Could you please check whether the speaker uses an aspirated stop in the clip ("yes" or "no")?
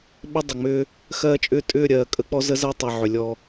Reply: no